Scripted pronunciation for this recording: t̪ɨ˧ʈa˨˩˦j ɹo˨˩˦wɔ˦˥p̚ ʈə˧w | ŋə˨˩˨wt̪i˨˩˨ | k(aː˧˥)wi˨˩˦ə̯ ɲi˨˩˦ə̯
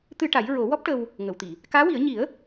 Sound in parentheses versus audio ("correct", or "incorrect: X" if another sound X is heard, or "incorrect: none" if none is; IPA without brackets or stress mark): correct